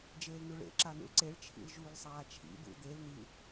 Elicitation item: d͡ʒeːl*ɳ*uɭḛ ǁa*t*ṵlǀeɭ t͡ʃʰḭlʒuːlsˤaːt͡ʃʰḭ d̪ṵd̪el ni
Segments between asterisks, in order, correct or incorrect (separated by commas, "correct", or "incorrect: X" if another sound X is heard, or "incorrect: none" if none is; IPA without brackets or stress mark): incorrect: n, incorrect: n